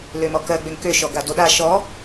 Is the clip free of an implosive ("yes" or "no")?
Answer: no